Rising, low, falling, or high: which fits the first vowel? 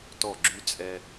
falling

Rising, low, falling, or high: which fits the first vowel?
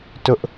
high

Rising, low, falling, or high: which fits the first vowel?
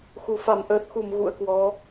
low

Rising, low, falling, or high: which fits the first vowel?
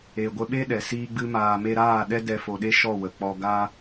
low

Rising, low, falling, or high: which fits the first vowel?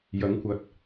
rising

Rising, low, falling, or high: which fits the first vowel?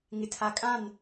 low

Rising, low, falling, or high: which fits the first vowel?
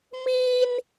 high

